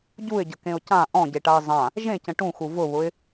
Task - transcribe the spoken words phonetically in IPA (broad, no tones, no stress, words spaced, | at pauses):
ɟuɪ̯ɟəkẽʊ̯ cã ʔɔ̃ɟeʈaɪ̯ zˤã | ʒẽcə̃ ʈũxu vʊβʊɪ̯